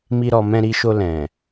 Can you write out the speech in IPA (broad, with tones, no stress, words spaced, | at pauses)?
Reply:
mi˦ɾɔ˧mɛ̃˦ ɾi˧ʃo˧ lɛ̃˨